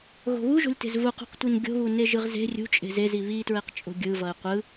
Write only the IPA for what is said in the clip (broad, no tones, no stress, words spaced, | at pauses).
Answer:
ɣo̤βuʒo̤lʲ te̤zvuqṳqtʷin ɡʲo̤βu neʒɯʁze̤ rʲṳt͡ʃʼe̤ zezi βitɹeq t͡ʃʼo̤ɡʲɯvʌɪ̯ qʷɯ